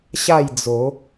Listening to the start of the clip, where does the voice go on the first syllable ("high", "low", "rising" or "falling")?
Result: falling